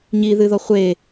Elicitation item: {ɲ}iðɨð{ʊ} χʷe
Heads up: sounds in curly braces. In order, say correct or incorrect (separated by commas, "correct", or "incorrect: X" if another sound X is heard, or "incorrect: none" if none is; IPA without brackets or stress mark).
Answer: correct, incorrect: ɔ